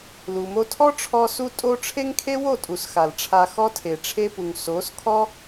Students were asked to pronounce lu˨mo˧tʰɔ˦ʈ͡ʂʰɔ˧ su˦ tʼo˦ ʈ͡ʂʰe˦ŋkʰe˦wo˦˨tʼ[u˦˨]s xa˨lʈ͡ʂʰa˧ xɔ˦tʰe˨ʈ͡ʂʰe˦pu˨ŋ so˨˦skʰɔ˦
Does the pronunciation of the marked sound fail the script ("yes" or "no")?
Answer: yes